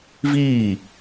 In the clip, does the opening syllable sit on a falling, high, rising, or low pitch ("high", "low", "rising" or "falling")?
falling